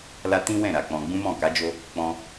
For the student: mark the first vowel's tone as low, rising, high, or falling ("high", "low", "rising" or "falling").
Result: high